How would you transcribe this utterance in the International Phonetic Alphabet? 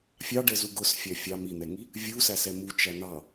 fʲɑɖɛzu ɡʊsfʲæ fʲɑ min̪ɛŋi | vʲusæsɛ mut͡ʃæ n̪ɑ

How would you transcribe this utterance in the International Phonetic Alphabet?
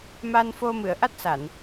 ma˧nfo˧ mɨ˨˩˨ə̯ʔa˦˥t̚sa˨˩˨n

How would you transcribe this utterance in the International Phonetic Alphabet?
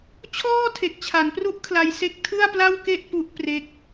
t͡ɕʰɔː˥˩tʰe˨˩k̚t͡ɕʰa˩˦npru˦˥ʔ kʰla˧jse˥˩k̚ tʰɯ˥˩a̯pla˥˩wke˥˩ʔ pu˦˥ʔ pre˦˥k̚

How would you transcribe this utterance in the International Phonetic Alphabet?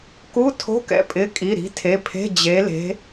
ku˧˥˧tʰo̤˧˥˧kɛ̰˨˥pʼɪ˩˧˩ kʼi˩˧˩ɾi̤˨˥tʰe˩˧˩pʰe̤˧˥˧ d͡ʑe˨˥le̤˨˥

